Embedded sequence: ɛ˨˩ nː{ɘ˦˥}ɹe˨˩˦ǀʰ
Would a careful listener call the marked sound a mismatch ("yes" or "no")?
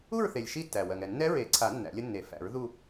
yes